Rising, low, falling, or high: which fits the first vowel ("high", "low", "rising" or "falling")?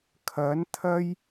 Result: rising